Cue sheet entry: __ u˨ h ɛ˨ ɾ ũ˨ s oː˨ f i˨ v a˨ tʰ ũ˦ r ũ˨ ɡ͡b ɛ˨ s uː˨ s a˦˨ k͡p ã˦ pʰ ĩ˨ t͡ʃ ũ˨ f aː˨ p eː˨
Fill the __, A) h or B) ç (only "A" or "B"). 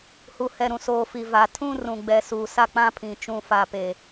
A